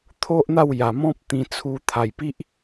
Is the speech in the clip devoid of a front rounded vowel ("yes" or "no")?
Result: yes